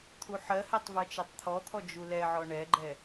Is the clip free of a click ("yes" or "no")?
no